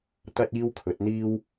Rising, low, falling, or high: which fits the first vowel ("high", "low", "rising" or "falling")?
high